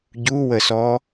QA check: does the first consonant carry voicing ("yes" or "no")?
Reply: yes